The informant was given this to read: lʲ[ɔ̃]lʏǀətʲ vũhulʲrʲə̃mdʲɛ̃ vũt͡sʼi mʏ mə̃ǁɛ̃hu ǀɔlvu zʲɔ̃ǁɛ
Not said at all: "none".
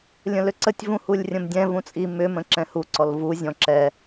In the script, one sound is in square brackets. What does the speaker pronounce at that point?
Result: ə̃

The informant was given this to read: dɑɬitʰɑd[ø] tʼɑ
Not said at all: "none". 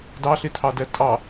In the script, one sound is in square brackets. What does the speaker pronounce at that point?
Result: ɛ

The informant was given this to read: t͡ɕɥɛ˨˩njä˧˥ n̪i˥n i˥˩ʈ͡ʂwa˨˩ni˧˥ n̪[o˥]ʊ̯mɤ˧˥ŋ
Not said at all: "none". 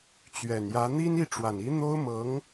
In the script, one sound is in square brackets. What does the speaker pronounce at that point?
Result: o˥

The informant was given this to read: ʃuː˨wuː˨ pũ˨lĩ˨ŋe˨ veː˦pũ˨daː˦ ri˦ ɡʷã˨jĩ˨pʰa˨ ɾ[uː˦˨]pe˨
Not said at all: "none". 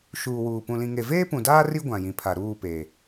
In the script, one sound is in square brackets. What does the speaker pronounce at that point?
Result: uː˦˨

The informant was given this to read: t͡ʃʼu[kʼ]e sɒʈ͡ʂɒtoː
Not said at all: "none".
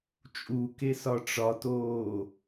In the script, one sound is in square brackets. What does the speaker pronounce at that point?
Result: k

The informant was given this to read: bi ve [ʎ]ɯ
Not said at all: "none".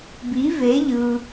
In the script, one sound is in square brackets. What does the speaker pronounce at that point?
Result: ʎ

